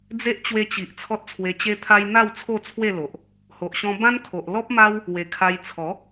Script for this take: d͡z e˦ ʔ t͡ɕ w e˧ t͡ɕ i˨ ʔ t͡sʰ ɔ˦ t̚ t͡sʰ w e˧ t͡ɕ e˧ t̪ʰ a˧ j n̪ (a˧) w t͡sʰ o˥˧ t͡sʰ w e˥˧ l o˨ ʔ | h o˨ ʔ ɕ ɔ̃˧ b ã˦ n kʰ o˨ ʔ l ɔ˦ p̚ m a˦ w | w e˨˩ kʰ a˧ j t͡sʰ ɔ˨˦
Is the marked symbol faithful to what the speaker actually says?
no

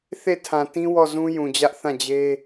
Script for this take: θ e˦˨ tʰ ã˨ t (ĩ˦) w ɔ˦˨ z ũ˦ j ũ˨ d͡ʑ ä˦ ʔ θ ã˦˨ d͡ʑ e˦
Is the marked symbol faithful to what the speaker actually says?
yes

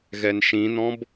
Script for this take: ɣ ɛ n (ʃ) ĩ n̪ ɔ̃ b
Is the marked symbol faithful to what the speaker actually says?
yes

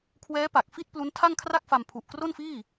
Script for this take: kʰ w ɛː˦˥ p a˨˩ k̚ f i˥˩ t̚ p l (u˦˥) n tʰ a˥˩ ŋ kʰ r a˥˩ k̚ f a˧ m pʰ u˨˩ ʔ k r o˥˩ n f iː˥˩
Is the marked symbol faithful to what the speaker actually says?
yes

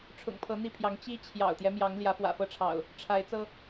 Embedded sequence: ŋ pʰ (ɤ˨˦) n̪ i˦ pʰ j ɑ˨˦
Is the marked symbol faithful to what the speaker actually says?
yes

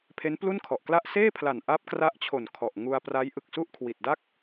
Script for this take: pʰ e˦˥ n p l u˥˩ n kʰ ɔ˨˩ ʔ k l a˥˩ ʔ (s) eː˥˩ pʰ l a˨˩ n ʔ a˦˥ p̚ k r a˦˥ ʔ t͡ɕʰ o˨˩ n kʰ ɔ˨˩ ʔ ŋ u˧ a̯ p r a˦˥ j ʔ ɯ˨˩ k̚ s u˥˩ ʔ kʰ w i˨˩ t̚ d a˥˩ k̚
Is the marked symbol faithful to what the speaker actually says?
yes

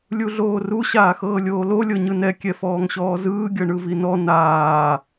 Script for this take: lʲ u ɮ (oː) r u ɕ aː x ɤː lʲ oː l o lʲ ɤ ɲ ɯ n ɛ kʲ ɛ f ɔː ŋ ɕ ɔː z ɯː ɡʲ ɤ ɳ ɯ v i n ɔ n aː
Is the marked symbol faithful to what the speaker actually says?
yes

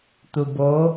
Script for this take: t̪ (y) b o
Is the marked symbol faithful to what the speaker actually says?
no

